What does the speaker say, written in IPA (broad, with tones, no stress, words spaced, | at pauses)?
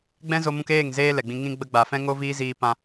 ɡ͡bɛ̃˦zo˧mũ˧keː˦˨ŋ zeː˦lɛ˨ɡ͡bĩ˧ ŋĩ˧ɡ͡bə˧ ɡ͡ba˨fɛ̃˦ŋo˦ viː˦ziː˧pã˧